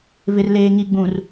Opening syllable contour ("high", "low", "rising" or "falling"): low